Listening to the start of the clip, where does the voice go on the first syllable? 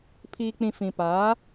low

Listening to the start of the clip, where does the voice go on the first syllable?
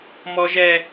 high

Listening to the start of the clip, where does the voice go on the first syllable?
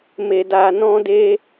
low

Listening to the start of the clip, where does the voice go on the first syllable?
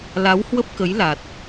rising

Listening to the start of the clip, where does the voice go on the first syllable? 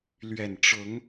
low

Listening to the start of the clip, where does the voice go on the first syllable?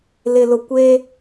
low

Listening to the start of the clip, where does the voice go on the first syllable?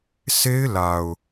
high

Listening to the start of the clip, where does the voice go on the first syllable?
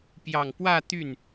low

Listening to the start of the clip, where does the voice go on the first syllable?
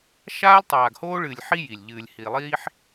high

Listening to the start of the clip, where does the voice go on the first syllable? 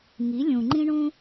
rising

